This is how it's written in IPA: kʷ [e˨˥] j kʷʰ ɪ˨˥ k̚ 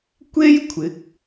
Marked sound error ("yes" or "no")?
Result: yes